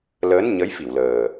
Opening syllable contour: rising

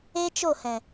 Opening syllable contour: high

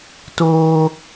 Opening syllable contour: high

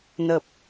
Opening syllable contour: low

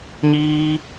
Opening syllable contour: high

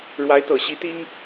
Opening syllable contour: rising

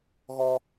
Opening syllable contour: high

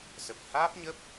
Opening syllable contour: low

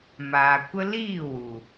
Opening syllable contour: low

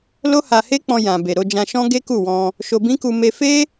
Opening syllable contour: high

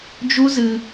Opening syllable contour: high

